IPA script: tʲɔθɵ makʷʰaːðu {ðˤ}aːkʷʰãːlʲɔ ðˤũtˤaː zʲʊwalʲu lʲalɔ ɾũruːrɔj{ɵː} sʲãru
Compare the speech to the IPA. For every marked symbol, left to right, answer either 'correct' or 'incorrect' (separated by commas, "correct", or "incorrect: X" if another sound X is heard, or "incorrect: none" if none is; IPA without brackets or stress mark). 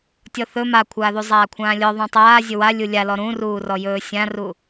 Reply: incorrect: zˤ, correct